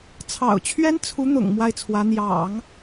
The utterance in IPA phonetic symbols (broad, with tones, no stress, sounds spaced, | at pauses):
t͡sʰ ɑ̰˨˩ ʊ̯ t͡ɕʰ ɥ ɛ˥ n t͡sʰ u˧˥ n̪ ʊ̰˨˩ ŋ m w a˥˩ ɪ̯ t͡sʰ w ä˧˥ n̪ j ɑ̰˨˩˦ ŋ